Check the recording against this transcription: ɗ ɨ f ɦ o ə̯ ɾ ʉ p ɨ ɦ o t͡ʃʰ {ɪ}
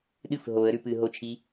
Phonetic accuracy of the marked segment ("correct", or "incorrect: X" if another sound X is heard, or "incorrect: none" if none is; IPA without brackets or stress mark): incorrect: i